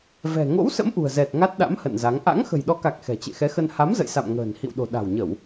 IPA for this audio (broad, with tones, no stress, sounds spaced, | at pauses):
v ɛ̤˨˩ ŋ o̰˧˥ w s ə̰˧˥ m ʔ ṳ˨˩ ə̯ z ɛ˨˩ t̚ ŋ a˦˥ t̚ ɗ a̰˧˥ m h ə̰˧˨ n z a˨˦ ŋ ʔ a̰˧˥ ŋ x ə̤˨˩ j ɗ ɔ˨˦ k a˨˩ k̚ x ɛ̤˨˩ t͡ɕ ḛ˧˨ x ɛ˨˦ x ə˧ n h a˨˦ m z ə̰˧˨ j s a̰˧˨ m ŋ ə̤ː˨˩ n h ḭ˧˨ w ɗ o̤˨˩ ɗ a̤˨˩ w ɲ ə˧˩˨ w